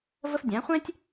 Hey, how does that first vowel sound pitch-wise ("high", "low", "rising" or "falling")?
high